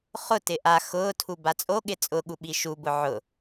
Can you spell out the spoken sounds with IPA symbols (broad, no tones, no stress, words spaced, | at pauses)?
χʊtɪ ʔa xʊːtʰu bat͡sʼoɠɪ t͡sʼʊɠu ɓiʃubʊ ʕʊ